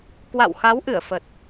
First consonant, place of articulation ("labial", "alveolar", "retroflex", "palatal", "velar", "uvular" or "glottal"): velar